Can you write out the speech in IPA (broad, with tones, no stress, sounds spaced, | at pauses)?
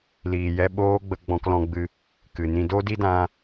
l iː˨ j ɛ˧ ɓ oː˦ ɡ͡b ə˧ ɡ͡b ɔ̃˧ k l ɔ̃˧ ɡ͡b ɨ˧ | k ɨ˨ n ĩ˧ d o˦ d i˦ d ã˧